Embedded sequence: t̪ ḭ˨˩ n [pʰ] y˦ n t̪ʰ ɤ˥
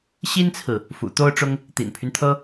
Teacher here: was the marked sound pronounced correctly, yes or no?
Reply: yes